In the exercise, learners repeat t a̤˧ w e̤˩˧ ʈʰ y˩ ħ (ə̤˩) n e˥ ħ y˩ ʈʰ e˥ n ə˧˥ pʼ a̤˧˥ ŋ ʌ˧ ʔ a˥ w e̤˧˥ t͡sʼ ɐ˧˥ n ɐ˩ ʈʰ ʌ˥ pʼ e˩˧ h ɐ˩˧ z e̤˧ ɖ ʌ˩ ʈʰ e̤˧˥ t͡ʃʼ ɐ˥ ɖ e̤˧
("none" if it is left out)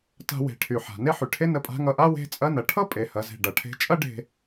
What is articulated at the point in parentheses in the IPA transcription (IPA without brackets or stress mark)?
a̤˩